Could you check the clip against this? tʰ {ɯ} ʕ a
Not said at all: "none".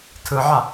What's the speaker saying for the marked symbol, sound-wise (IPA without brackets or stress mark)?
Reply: ɯ